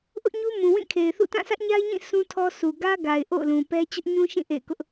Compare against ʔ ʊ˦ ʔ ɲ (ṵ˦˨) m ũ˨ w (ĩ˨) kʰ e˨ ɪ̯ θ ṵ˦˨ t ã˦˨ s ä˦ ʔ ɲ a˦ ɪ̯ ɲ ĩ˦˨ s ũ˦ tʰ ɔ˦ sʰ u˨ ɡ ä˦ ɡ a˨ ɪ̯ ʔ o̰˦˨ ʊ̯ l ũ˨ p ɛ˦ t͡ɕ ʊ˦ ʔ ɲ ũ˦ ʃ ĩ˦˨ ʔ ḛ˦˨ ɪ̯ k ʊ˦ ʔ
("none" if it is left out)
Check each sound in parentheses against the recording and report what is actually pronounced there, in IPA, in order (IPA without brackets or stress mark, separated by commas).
u˦, ĩ˦˨